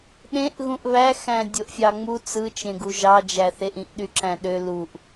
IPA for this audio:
ɗ ẽ ʔ ɣ ũ ʔ β æ x æ̃ dʲ o ʔ fʲ ɑ ŋ͡m u t͡s ɯ t͡ʃ ẽ ɡ u ʒ ɑ d͡ʒ æ θ e ʔ ĩ ʔ ɗ y ǁ æ̃ ɗ ø l u ʔ

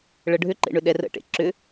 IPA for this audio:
ɭ ə ɖʱ ʏ ǃ ḛ ɳ ʏ ɗ ɛ r ə̰ ʈ ḛ ǁ ʏ

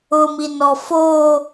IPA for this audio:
ʊ m i n ɔ f o

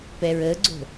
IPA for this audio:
p ɛ ɹ ə ɡ͡ǀ o̤

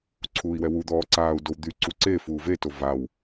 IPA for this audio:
ǀʰ uː i̯ w ɛ w u d̪ ɔː ǀ aː u̯ d o w d̪ y ǀ u ǀ e f uː v e t o v a w

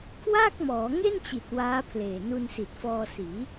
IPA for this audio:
kʰ w aː˥˩ k̚ m ɔː˩˦ ŋ e˥˩ n t͡ɕ i˨˩ t̚ w aː˦˥ pʰ l eː˨˩ n u˧ n s i˨˩ t̚ f ɔː˧ s iː˩˦

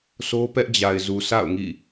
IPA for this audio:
sʰ o˦ p ɛ˦ ʔ d͡ʑ a˨ ɪ̯ z u˨ sʰ a̰˦˨ ʊ̯ ŋ ḭ˦˨

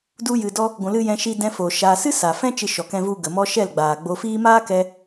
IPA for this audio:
d u˧ j ɨ˨ d ɔ˧ | ɡʷ ũ˨ l ɨ˧ j ɛ̃˧ ʃ i˧ d ɛ̃˧ f o˨ ʃ aː˧ s ɨ˦ s a˨ f ɛ̃˦ t͡ʃ ɨ˧ ʃ ɔ˨ k ɛ̃˧ v u˧ ɡ ə˨ m ɔ˦ ʃ ɛ˦˨ l ɡ͡b aː˨ ɡ͡b o˧ f iː˦ m aː˦ k ɛ˧

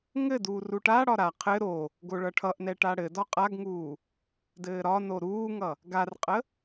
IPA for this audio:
ŋ ɘ d uː r u ʈ a ɽ ɒ ɾ a qʰ ɘ ɾ o | ɡ o ɭ ʌ ʈʰ ʌ ʔ n ɛ ʈ a ɽ ɘ d ɒ qʼ a ɡ ŋ uː | d ɘː ɾ ɒ n o ɾ uː ŋ ʌ | ɡ a r qʼ ə

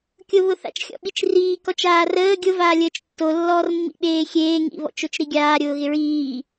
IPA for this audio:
kʲ ʊ β ʊ θ a̰ t͡ʃ xʲ ɔ̰ ɓ i t͡ʃ r iː k ɔ t͡ʃ aː r əː ɡʲ ʊ v aː lʲ əː t͡ʃ tː o lː ɔː r mː ḭ ɓ eː xʲ eː ŋ ḭ β ɔ̰ t͡ʃ o t͡ʃ ɾ i ɡʲ aː ɾʲ ʊː ɣ ɪ ɹ iː

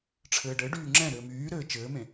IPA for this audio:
ʈ͡ʂʰ ɘː ɖ ɘ ɖ yː ŋ͡ǁ ɛ̃ ɾ ɘː m yː ɾ ɘː t͡ʃ ɘː m ẽ

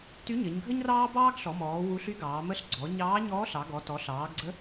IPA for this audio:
t y˧˥ ɲ ə˩˧ ɲ ɡʱ ə˥ ɲ r ɑː˥ b ɑː˥ ɡ ɬ ɔ˩˧ m ɔː˩˧ w u˧˥ ɬ y˥ ɡ ɑː˩˧ m ə˧˥ ɬ ɡ͡ǀ ɔ˩˧ ɲ ɑː˧˥ ɲ ɔː˧˥ ɬ ɑ˩˧ ɡ ɔ˩˧ t ɔ˩˧ ɬ ɑː˩˧ ɡ ɡ͡ǀ ə˧˥

